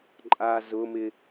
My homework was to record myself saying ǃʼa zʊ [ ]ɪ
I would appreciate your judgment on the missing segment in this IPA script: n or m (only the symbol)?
m